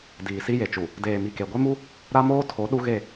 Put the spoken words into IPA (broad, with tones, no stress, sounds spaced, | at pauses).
d iː˨ s i˦ j e˨ t͡ʃ u˨ | d eː˨ m i˨ k e˨ ɡʷ e˦ m u˦ | ɾ a˦ m oː˦ tʰ o˨˦ ɗ u˦ ɣ e˦˨